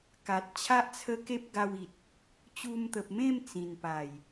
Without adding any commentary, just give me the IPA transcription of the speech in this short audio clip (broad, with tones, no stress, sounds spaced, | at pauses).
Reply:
k a˨ t̚ t͡ɕʰ a˦ ʔ t͡sʰ ə˦ k e˦ p̚ ɡ a˧ w i˨ t̚ | t͡ɕ u˧ m t̪ ə˨ p̚ m ẽ˥˧ m t͡s ĩ˨˩ n p a˨˩ j